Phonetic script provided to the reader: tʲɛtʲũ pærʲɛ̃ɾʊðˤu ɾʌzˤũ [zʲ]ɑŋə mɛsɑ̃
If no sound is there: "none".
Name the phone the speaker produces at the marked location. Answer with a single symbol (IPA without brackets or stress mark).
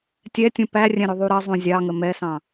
zʲ